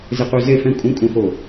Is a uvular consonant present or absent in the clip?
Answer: present